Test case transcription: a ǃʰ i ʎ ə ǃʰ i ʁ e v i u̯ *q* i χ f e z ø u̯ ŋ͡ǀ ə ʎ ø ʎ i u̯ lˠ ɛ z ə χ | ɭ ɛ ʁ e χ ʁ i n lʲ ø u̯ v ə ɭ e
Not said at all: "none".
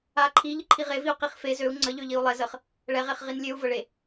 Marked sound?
q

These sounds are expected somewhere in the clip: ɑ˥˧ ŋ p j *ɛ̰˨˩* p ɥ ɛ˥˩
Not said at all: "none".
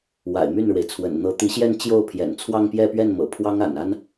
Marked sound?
ɛ˥˧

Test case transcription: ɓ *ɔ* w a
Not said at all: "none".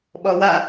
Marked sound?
ɔ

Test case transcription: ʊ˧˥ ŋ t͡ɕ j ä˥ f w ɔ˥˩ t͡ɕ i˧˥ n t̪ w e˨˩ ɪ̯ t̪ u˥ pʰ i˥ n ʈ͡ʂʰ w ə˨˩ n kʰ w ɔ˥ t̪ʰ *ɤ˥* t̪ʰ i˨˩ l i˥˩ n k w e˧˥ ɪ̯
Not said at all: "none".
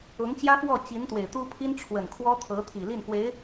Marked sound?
ɤ˧˥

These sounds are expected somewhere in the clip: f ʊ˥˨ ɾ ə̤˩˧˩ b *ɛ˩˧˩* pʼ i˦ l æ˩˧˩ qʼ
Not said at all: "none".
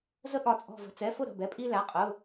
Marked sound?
ɛ˩˧˩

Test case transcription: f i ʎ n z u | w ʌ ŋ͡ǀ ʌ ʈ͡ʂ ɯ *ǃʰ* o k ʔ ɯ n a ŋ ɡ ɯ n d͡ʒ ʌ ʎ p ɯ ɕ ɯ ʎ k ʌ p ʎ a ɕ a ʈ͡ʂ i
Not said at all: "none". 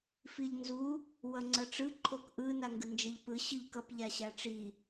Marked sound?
ǃʰ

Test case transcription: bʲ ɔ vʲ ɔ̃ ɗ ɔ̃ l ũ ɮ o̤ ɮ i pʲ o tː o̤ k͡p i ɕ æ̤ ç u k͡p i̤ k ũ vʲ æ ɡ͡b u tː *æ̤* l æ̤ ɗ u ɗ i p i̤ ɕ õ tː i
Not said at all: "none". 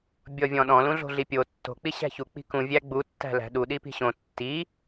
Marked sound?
æ̤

